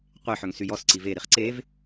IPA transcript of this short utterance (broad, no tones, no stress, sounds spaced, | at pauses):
qʷ e ħ œ ŋ s y j ɔ s ǀ i v e ɾ i χ ǀ e v